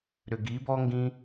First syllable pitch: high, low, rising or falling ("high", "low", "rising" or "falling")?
low